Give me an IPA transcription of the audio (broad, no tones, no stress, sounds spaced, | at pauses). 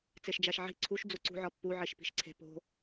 t͡s e ʃ d͡ʒ æ ʃ ʕ i̤ ǀʰ u ʃ d͡z u ǀ ṳ ʕ ɒ pː u ʕ i ʃ p i̤ ʃ ǀʰ e̤ p o̤